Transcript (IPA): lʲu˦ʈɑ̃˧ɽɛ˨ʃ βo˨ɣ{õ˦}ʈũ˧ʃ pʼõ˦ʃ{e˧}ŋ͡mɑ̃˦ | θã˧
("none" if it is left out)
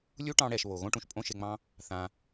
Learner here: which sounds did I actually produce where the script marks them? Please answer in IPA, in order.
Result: õ˦, e˧

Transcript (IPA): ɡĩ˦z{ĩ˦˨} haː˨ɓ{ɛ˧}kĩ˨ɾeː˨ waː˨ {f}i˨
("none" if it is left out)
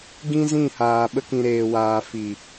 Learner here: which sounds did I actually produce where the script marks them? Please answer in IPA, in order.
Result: ĩ˦˨, ə˧, f

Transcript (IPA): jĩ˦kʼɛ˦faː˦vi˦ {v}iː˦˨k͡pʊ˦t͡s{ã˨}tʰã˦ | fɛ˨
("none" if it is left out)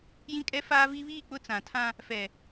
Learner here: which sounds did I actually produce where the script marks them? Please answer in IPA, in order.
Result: β, ã˨

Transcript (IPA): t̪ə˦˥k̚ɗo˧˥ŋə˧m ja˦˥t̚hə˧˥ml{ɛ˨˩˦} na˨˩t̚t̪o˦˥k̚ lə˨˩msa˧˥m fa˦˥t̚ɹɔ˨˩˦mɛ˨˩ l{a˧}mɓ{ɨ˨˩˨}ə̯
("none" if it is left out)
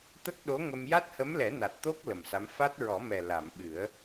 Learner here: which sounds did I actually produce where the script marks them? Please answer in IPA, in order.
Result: ɛ˨˩˦, a˨˩˨, ɨ˨˩˦

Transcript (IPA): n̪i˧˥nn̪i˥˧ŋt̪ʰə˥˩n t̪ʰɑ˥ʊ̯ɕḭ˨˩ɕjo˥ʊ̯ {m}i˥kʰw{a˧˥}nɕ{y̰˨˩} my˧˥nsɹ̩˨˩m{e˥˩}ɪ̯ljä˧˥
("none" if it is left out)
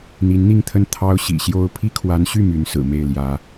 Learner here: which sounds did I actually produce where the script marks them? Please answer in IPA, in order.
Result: pʰ, a˧˥, y˥˩, e˥˩

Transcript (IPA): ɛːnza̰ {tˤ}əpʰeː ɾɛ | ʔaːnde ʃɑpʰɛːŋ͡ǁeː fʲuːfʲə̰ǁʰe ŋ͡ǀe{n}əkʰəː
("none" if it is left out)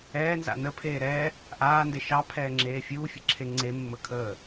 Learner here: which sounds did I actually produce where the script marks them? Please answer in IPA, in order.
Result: n, mː

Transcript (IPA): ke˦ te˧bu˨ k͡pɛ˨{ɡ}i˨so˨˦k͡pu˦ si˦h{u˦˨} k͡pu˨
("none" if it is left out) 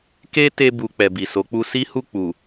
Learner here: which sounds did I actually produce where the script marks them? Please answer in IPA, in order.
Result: b, u˦˨

